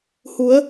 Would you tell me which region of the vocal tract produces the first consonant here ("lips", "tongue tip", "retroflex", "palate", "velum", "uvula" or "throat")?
throat